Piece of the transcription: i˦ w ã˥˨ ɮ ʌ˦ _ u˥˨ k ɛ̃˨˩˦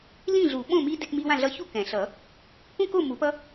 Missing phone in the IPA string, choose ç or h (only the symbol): ç